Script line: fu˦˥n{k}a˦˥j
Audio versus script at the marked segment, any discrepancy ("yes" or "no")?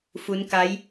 no